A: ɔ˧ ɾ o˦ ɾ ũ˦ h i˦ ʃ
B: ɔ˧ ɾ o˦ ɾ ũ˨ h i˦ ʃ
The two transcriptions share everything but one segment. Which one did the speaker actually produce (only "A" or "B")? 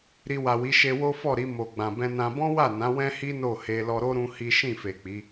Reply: A